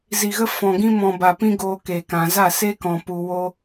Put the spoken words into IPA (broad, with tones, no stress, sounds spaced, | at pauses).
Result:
z i˨ ɣ ə˧ f ɔ̃˨ ɡ ĩ˧ m ɔ̃˨ b a˨ p ĩ˦ ɡ oː˧ k e˨ k ã˨ z a˦˨ s e˦ k ɔ̃˨ p u˨ w o˧